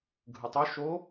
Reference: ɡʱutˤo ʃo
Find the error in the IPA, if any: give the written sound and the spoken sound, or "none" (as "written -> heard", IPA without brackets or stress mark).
u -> ɯ